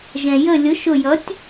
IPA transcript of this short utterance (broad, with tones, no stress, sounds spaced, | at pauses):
ʒ ɛ̃˩ j ə˧˩ lʲ ʊ˩˥ ʃ ʊ˧˩ j ʌ˩˥ tʲ